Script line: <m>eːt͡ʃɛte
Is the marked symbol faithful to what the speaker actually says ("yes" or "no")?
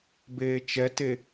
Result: no